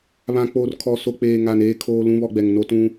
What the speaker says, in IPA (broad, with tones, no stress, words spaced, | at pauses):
βã˨k͡poː˨r kʰɔ˨so˨k͡peː˨ ŋa˨neː˦ kʰoː˦ lũ˦βɔ˦ɡ͡bɛ˨ŋ no˦tũ˦